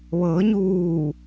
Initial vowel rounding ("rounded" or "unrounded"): unrounded